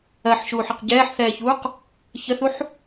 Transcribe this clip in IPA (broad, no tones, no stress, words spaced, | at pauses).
ɜħʃuːħəq ɟɛːħθɛːçuːq | çəθuħ